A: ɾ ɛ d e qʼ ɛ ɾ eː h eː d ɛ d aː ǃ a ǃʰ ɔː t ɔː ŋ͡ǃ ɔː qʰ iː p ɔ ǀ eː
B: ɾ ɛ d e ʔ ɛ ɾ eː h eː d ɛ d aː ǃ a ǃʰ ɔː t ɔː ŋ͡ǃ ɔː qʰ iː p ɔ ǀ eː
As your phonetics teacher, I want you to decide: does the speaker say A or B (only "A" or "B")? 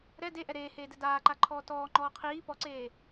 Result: B